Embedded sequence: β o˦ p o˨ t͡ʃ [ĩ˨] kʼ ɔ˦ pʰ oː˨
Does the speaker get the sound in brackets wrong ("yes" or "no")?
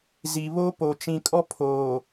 no